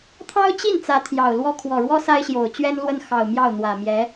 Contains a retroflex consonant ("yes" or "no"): yes